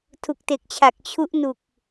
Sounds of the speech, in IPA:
tʰ u˨˩ k̚ t e˨˩ k̚ t͡ɕʰ a˨˩ k̚ t͡ɕʰ u˦˥ ʔ n u˨˩ k̚

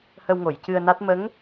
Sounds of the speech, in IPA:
h ə˧ w ŋ o˨˩˨ j c ɨ˧ ə̯ n a˦˥ t̚ m ə˧˥ ŋ

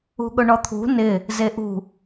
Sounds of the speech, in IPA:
ṳ ɠ ʊ ɳ ɔ t̪ʰ ṳ n ɪ | z e ʔ ṳ

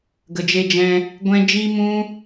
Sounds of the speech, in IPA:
ɡ ə˨ d͡ʒ e˧ d͡ʒ ɛ̃˧ | ɡʷ ɛ̃˦ d͡ʒ iː˦ m ũ˦

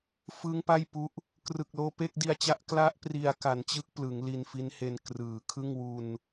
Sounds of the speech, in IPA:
f ɯ˦˥ ŋ p a˥˩ j p u˦˥ ʔ | k r ɯ˨˩ k̚ l oː˧ p e˥˩ k̚ d i˧ a̯ t͡ɕ a˦˥ ʔ k l a˦˥ ʔ p r i˧ a̯ k a˩˦ n t͡ɕ ɯ˦˥ k̚ p l ɯ˩˦ ŋ l i˧ n f i˦˥ n h e˧ n k r ɯː˨˩ kʰ ɯ˥˩ ŋ w u˧ n

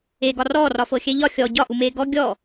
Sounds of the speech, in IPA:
eː ɡ ɒ r ɔː r ɒ f ɤ xʲ ɛ ʎ ɒ xʲ ɔ ɟ ɒ ʔ u m eː ɡ ɔ ɡʲ ɔ

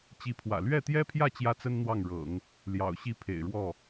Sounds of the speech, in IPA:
t͡ɕ i˧˥ pʰ w ä̰˨˩ l ɥ ɛ˥˩ t̪ j ɛ˥ pʰ j ä˥˩ t͡ɕ j ä˥ t͡s ə˥ n n̪ w ɑ˥˩ ŋ ɻ ɤ̰˨˩˦ ŋ | l j ɑ̰˨˩ ʊ̯ ɕ i˥˩ pʰ ḛ˨˩ ɪ̯ ɻ w ɔ˥˩

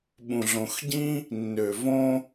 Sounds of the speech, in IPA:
ɓ ũ˧ ɮ õ˧ x ɟ ĩ˥ | nː ø˧ v õ˥

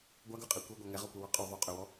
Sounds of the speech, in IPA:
ɡʷ a ɡ ʉ qʼ e kʷ e ɡʷ a ŋ ɛ ʁ ɔ kʷ ɛ w ɔ qʼ ʉ ðˤ ʉ qʼ ø w ɔ

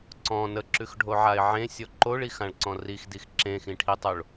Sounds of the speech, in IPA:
ǀ ɔ̃ n ə ǁ ʉ x ɖʱ o ʕ a ɪ̯ ʕ ẽ sʲ ɔ ǃ o ɭ i x ã ɭ ǀ ɔ̃ r i x d i x ǁ ẽ x ĩ ʈʰ i tˤ o ɭ

